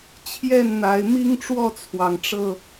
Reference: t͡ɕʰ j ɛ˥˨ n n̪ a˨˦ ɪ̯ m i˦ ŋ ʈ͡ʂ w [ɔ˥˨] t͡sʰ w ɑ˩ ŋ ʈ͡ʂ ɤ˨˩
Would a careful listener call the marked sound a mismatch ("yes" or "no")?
no